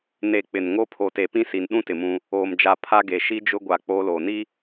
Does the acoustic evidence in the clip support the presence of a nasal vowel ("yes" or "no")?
yes